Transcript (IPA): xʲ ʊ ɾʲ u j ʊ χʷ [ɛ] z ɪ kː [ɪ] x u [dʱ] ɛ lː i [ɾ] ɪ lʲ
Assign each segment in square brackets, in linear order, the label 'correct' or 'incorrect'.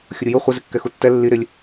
incorrect: ɪ, incorrect: ɛ, incorrect: tː, correct

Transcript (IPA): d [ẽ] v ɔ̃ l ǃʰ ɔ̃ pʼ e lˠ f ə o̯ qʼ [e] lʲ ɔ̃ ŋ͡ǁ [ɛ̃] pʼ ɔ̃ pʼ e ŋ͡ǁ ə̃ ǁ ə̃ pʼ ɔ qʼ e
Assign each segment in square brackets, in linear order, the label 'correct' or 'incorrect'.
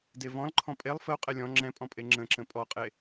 incorrect: e, incorrect: ɛ, correct

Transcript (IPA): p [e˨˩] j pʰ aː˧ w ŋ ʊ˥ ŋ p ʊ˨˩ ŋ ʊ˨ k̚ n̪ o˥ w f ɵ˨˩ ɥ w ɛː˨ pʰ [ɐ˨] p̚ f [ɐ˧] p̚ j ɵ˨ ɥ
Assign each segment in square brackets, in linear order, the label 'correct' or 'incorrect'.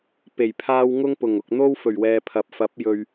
correct, correct, incorrect: ɐ˨˥

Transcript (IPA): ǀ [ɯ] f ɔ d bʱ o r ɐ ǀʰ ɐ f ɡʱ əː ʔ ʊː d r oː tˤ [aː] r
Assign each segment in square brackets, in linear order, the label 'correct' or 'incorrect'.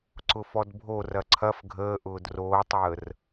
incorrect: ʊ, incorrect: əː

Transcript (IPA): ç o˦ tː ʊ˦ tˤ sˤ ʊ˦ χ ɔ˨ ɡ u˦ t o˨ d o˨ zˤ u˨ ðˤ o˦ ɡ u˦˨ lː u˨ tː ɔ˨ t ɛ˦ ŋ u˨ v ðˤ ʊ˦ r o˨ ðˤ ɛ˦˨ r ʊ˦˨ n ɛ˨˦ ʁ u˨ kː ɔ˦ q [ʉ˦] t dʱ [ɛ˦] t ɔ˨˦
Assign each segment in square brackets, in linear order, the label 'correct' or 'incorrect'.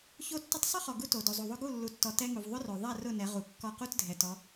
incorrect: u˦, incorrect: ɛ˨

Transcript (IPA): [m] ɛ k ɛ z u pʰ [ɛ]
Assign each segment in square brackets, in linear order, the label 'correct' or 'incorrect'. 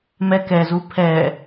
correct, correct

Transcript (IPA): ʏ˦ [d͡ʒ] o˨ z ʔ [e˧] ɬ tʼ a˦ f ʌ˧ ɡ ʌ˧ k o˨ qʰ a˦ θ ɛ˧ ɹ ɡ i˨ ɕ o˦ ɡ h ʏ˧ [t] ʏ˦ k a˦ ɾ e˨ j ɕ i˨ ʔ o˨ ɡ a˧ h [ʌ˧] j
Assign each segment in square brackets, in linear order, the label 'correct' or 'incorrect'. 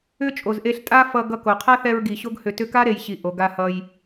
incorrect: t͡ʃʼ, correct, correct, correct

